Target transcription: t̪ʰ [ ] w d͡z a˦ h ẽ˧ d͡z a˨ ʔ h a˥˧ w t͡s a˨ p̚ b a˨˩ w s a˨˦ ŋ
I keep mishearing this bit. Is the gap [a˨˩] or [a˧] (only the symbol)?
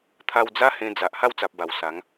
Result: a˧